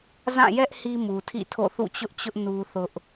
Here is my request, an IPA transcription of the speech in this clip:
z ã˦˨ j ɛ˦ ʔ h i˦ m u˨ tʰ ḭ˦˨ tʰ o̰˦˨ θ ṵ˦˨ t͡ɕ ʊ˦ ʔ t͡ɕ ʊ˦ ʔ n u˦ θ ʊ˦ ʔ

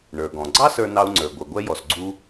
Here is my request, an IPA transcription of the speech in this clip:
ɳ ə˞˩ ɡ ɔ̃˩ ɡ͡ǀ ɑ˥ s ə˞˥ n ɑ˥ u̯ ŋ͡ǀ ə˞˩ ɡʷ ə˞˩ ɡʷ ɛ˥ j ɔ˩ s ɡ͡ǀ u˥

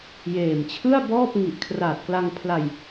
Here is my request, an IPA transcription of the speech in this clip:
j eː˨˩ m t͡ɕʰ ɯ˥˩ a̯ b ɔː˥˩ p̚ ŋ i˨˩ ʔ kʰ r aː˨˩ t̚ k l a˧ ŋ pʰ l a˧ j

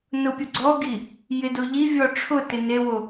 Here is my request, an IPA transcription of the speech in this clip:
n ʊ pʲ ʊ ɡ͡ǀ ɔ ɡ i | j ɪ d o ʎ i vʲ ɔ ʈ͡ʂʰ ʊ t ɪ n e w o

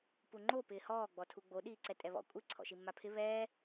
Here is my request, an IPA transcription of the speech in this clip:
p u ŋ͡ǃ o p ɪː h ɔː ɡ͡b ɔ tʰ u ɡ͡b o ɗ iː ǀ ɛ tʼ ɛ β ɔ̰ kʷʼ ɪ ǀʰ ɔ̰ ʃ i mː a pʰ ɪ β ɛː

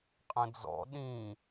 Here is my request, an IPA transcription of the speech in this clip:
qʼ ə̃ d͡z ɔ̰ ɗ ĩ

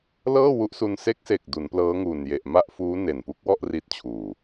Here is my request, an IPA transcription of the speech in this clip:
l ɤː˥˩ w u˦˥ ʔ s u˧ n s e˦˥ k̚ s e˨˩ k̚ d u˩˦ n p l ɤː˦˥ ŋ uː˨˩ n j e˨˩ ʔ m a˥˩ ʔ f uː˦˥ n e˨˩ n p u˦˥ k̚ w ɔ˥˩ ʔ r i˦˥ t̚ t͡ɕʰ uː˨˩

